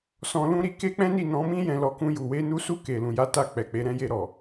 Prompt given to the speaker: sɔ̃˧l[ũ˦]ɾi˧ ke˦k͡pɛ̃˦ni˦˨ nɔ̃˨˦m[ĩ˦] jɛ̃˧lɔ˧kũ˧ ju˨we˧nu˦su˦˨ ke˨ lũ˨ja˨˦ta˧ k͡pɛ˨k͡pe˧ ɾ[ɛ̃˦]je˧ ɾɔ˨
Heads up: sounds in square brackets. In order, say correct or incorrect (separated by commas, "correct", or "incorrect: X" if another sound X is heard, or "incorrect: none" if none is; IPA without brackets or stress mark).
correct, correct, correct